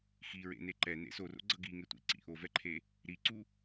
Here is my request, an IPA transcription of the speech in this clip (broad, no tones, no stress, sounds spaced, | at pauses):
x i ɹ ḛ n e ǃ ɛ n ḛ s o r o̰ ɡ͡ǀ ʌ ɡ i ŋ e tʷ ḭ ǀ ḭ ʔ o v ɛ ǃʰ e | ɾ i ǀ u